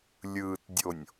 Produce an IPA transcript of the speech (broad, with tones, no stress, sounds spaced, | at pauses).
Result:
lʲ ɯː˨ t dʲ o˨ nʲ